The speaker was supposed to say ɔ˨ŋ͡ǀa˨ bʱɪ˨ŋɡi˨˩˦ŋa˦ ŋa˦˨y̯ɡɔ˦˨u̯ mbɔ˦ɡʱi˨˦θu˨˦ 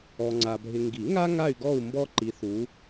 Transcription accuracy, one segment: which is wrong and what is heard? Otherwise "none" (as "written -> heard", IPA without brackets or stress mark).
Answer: ɡʱ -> ǃ